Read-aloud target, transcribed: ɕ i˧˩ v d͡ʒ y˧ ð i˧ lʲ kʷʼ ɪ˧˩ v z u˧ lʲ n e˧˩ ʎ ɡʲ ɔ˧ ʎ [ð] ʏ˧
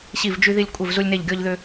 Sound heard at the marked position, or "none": ð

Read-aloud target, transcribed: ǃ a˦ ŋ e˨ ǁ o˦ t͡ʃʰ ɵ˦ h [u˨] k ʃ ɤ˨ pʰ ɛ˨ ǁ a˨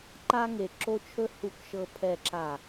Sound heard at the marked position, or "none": u˨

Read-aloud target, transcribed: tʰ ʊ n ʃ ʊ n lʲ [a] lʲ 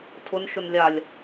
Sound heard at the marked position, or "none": a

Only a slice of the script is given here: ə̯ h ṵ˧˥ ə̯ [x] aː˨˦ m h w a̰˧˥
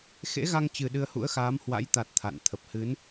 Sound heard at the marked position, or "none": x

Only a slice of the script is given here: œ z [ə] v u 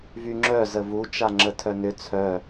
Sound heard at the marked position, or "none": ə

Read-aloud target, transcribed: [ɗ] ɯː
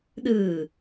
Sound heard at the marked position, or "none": ɗ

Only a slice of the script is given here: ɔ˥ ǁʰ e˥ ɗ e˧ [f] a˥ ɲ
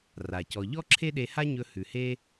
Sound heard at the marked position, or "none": h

